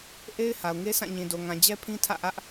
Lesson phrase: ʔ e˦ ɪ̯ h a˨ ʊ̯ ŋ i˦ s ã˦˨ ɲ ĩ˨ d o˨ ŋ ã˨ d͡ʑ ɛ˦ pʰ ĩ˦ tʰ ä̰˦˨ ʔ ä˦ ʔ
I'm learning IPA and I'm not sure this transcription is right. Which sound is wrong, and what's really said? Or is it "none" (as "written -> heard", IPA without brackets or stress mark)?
i˦ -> e˦